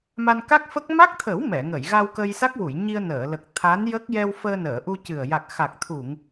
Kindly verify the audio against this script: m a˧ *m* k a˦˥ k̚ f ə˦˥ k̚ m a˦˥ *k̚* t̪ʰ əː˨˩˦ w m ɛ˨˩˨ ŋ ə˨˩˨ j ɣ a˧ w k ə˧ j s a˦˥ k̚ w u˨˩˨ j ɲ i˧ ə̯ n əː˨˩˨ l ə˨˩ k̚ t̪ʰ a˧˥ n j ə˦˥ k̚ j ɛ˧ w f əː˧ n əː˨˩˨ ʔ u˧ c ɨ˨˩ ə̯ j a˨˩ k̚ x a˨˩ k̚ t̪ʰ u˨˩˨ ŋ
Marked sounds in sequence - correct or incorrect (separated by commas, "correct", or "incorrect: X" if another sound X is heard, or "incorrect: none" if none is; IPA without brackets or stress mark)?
incorrect: n, correct